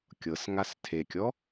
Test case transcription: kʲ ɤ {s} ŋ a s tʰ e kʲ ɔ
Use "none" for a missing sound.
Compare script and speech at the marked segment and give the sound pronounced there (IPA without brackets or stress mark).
s